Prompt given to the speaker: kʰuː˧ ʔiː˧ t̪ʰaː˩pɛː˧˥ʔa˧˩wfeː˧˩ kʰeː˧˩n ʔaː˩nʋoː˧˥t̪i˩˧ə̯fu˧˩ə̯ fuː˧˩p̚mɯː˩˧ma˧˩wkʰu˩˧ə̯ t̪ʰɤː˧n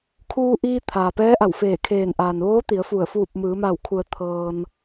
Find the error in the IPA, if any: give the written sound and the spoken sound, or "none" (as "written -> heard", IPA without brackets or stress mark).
none